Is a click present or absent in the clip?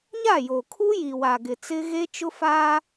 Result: absent